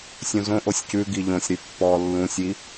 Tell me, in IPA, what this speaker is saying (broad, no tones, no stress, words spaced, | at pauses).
sʲũzõʔosʲ cʉ ɡiʎõsʲɾy pːɔ lːũsʲi